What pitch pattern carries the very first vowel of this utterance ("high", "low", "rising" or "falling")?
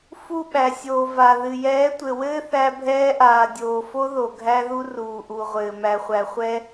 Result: falling